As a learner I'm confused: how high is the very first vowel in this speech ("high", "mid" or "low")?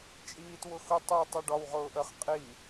high